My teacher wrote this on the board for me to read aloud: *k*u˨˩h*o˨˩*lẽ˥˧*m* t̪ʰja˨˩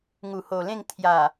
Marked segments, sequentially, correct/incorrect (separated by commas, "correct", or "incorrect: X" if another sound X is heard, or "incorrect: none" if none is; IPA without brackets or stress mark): incorrect: ŋ, correct, incorrect: ŋ